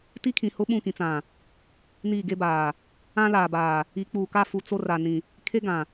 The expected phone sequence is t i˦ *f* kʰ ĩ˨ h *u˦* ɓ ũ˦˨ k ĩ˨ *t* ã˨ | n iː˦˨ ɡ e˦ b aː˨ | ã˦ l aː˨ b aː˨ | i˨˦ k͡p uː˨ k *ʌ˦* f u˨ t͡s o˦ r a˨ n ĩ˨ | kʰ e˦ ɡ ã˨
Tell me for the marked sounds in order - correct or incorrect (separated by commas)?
incorrect, incorrect, incorrect, incorrect